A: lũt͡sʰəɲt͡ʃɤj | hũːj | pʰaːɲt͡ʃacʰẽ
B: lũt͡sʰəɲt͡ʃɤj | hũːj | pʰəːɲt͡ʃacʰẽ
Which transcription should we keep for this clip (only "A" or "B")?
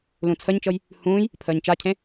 B